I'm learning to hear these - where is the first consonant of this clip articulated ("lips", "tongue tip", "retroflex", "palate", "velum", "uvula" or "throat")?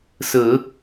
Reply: tongue tip